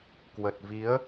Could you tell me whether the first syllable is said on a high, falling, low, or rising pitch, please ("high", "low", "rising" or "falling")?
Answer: low